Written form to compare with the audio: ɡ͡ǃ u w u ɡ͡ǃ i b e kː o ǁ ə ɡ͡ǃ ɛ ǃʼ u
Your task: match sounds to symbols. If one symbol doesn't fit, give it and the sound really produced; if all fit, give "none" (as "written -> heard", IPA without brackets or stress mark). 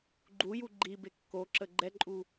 w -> j